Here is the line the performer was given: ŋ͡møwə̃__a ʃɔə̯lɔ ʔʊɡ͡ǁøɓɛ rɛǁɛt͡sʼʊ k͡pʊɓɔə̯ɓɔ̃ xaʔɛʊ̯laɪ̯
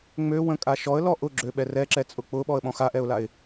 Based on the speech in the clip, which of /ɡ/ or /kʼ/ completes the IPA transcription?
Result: kʼ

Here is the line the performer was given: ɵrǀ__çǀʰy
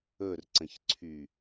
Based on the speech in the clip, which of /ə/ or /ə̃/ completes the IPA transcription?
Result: ə̃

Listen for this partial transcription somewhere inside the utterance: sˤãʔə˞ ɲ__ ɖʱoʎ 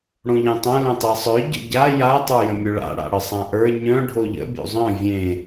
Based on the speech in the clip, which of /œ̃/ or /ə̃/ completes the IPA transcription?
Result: œ̃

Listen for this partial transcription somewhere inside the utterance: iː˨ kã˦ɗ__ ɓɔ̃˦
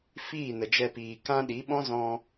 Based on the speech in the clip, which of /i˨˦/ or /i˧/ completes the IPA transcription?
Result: i˨˦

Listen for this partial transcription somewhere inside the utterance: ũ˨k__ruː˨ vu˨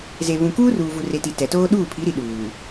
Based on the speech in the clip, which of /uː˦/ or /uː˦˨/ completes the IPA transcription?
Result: uː˦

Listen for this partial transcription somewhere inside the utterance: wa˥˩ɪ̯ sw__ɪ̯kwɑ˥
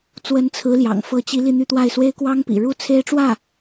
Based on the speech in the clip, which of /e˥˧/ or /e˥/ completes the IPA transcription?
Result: e˥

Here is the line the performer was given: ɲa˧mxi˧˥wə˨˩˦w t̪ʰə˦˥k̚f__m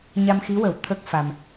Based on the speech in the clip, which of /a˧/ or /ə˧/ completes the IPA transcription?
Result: a˧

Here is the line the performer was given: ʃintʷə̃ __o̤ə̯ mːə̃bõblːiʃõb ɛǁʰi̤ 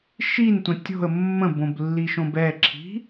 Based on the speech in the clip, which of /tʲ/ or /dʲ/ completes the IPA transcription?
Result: tʲ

